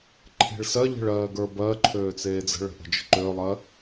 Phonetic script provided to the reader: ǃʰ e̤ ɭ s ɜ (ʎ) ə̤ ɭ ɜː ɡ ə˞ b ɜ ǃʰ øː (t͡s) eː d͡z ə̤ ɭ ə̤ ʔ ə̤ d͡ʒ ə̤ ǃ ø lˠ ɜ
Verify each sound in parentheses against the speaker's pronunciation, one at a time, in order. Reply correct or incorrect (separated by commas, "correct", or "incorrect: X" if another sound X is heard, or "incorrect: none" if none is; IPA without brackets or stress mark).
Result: correct, correct